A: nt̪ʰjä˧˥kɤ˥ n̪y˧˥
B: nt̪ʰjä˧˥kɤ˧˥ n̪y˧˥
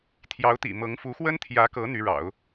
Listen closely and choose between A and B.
B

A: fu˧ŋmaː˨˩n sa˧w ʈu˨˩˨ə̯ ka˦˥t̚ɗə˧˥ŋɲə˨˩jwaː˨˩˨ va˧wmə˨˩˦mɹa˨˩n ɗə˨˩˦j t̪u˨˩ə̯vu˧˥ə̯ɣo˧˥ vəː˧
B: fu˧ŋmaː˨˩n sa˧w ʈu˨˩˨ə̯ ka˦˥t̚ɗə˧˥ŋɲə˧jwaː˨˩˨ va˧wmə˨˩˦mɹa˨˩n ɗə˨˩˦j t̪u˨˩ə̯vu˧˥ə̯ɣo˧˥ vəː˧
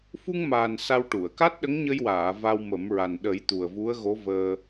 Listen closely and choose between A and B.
B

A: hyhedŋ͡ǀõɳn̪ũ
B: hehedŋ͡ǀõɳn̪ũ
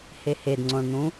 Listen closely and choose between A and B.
B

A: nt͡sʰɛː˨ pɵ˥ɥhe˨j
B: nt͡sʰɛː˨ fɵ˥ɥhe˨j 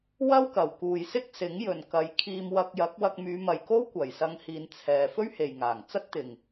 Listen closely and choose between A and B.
B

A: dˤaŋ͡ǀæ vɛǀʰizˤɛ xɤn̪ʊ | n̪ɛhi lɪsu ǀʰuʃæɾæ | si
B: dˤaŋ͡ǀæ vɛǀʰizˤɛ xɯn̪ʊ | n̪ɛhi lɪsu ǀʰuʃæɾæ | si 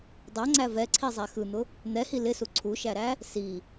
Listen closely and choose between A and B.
B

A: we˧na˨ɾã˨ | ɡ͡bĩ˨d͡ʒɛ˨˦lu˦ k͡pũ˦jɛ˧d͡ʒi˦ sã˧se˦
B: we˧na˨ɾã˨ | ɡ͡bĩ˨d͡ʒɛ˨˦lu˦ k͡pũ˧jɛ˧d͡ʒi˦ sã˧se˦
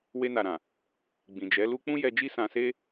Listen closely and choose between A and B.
A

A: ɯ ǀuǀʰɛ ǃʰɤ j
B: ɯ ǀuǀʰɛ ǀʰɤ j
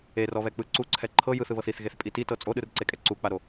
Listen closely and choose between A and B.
A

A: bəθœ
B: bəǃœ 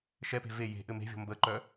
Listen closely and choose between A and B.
B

